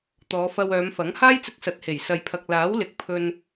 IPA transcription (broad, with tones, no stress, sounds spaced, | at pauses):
t̪ ɔː˨˧ f ɐ˧ w œː˨˧ m f ɐ˨˥ ŋ h aː˥ j t͡s ɪ˧ k̚ s ɐ˨˥ t̚ h e˨˩ j s ɐ˨ j pʰ ɐ˨ k̚ l aː˨˥ w l ɪ˨˥ k̚ pʰ ɵ˧ n